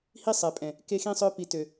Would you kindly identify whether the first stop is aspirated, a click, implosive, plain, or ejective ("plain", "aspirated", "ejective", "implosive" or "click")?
ejective